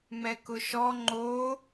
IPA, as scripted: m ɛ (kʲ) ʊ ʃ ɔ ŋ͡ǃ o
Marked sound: incorrect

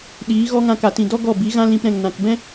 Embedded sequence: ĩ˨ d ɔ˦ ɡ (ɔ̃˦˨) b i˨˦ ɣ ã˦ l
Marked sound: incorrect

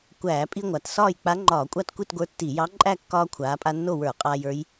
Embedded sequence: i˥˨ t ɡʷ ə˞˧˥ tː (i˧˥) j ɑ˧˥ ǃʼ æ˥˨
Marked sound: incorrect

